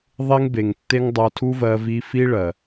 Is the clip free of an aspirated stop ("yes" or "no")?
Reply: no